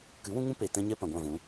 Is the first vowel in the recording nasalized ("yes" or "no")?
no